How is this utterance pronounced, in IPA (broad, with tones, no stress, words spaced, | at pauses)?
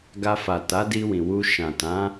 ɡa˧fa˨ ta˨˦di˧wĩ˨wu˧ ʃã˨tã˨˦